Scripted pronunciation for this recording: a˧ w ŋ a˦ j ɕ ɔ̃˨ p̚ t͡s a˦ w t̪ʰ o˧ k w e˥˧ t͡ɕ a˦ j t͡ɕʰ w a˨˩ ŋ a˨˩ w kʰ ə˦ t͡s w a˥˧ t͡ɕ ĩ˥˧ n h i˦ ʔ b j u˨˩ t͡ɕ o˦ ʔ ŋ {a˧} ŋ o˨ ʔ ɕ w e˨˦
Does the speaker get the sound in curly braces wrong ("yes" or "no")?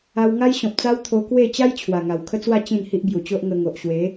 yes